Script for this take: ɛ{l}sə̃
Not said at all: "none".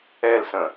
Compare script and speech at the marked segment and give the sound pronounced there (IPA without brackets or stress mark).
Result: l